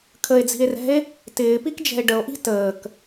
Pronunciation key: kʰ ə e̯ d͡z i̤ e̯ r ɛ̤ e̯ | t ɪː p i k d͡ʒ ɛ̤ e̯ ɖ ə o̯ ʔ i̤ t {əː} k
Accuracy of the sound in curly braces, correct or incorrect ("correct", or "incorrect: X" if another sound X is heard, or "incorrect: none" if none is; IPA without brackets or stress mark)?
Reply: correct